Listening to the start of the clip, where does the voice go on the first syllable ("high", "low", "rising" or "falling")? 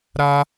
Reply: high